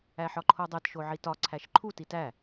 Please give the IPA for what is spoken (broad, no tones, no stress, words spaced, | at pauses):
æħɒǃʰodˤet ʃoʕitɒ ǀʰæʃǃʰu titæ